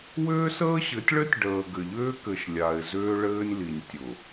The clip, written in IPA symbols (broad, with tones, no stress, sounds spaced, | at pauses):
w ʏː˦ s əː˦ ɕ ɘ˨˦ tʲ ɭ ɘ˦ tʲ ɖ əː˨ ɡ ɘ˨ ʎ ʏː˦ k ɘ˨ ʃ lʲ a˨ ɪ̯ z ʏː˦ ɭ ɘː˦ nʲ l i˨ nʲ tʲ ʊ˨